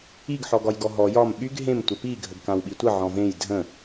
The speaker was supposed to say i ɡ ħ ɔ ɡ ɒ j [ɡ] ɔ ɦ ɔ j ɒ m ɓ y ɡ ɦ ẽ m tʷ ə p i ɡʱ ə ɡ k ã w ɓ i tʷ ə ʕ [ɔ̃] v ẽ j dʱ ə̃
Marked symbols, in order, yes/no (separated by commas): yes, yes